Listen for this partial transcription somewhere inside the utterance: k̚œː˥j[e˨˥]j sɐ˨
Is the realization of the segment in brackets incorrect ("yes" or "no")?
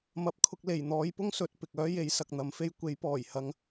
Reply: no